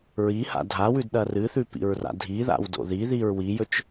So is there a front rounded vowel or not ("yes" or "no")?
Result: no